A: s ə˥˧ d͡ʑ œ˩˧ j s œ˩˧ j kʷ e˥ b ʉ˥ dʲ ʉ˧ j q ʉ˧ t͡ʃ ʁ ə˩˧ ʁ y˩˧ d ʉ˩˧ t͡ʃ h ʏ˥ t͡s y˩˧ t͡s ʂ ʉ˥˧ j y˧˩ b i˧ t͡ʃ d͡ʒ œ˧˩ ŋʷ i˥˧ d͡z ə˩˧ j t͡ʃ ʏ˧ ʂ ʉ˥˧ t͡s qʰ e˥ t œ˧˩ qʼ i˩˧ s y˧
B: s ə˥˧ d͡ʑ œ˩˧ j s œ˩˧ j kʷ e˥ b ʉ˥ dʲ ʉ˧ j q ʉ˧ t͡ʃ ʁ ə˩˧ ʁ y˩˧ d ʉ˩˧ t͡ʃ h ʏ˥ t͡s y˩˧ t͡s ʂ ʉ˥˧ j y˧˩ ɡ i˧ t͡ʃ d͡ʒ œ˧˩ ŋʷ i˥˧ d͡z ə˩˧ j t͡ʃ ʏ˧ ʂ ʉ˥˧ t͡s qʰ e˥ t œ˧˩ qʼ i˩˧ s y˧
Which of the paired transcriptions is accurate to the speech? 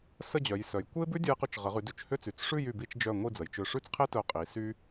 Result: A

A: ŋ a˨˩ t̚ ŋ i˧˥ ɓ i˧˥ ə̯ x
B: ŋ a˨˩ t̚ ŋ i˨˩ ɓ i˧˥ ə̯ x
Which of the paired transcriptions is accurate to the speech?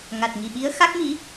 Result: B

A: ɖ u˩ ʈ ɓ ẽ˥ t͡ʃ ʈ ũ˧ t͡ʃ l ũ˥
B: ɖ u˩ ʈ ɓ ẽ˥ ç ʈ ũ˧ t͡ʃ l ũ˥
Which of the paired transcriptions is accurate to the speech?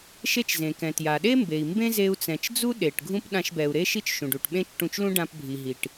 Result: A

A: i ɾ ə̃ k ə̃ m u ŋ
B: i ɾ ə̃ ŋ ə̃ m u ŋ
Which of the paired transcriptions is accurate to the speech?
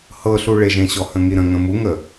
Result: B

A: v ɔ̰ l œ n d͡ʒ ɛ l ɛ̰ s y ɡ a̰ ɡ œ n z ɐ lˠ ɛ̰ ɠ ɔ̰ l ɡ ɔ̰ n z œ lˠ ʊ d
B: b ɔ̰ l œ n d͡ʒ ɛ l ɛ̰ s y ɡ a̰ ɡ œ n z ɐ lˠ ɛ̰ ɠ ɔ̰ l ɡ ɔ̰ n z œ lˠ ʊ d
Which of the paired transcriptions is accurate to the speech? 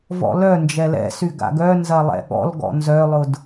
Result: A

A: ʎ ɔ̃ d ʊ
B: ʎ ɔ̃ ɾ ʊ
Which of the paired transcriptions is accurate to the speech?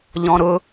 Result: B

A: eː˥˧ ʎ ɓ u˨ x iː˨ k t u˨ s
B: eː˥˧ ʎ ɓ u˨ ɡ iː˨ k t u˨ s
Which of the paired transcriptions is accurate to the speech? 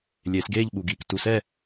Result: B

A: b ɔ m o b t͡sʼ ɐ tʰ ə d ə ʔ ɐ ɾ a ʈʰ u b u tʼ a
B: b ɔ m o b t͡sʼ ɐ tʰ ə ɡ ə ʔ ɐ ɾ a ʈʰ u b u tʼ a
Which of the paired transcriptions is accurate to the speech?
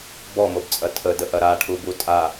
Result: A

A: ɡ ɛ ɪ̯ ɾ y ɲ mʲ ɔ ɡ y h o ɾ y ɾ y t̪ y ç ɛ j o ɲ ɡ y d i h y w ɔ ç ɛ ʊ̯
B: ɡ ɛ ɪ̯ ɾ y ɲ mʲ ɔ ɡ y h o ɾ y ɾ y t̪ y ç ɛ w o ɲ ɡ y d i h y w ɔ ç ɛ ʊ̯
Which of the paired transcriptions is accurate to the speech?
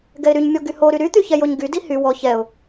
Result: A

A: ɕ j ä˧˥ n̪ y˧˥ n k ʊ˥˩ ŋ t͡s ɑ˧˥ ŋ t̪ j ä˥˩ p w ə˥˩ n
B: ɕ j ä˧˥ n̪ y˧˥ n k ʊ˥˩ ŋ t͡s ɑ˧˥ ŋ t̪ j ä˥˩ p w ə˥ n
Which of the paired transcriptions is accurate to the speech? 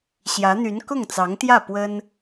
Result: B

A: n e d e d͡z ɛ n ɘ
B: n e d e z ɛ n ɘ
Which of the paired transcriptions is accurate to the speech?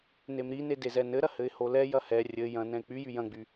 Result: B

